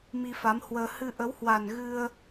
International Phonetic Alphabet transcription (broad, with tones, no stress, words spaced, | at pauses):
mi˧fa˨˦mhwəː˧ hɨ˧ʔə˨˦whwa˨˩n ɣɨ˧ə̯